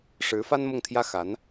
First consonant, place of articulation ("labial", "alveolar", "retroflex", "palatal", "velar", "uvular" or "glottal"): retroflex